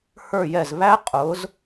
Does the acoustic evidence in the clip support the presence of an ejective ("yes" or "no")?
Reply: yes